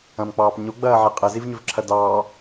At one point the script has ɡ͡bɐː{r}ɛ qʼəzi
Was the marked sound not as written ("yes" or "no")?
yes